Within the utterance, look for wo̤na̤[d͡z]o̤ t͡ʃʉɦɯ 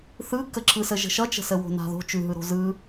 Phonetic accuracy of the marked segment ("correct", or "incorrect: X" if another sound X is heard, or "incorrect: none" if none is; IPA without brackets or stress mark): incorrect: ð